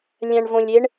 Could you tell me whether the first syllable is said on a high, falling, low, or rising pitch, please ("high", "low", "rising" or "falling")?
low